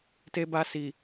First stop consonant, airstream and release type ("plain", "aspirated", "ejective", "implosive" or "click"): plain